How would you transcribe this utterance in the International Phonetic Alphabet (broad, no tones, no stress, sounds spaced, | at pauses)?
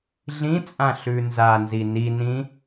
ɮ ĩ t͡sʼ ã ɬ ʉ n z a n z i n i n ĩ